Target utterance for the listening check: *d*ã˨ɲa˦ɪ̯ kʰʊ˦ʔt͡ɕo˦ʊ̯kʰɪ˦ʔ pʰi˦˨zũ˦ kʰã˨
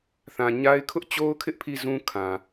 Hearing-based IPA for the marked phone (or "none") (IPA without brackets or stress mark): θ